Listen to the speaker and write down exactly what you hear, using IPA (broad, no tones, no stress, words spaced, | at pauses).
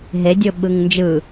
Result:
ɦe dʲoɓɯŋnd͡ʒɯ